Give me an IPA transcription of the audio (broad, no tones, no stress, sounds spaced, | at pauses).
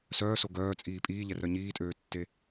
s œː s o ɡ œː t͡sʼ iː pʼ iː ʎ ɛ r œ ɲ iː tʼ øː tː e